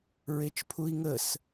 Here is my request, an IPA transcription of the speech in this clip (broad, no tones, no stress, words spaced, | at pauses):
ɹet͡ʃpʰui̯ŋəs